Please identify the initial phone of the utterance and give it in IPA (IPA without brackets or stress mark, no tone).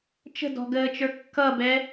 t͡ʃ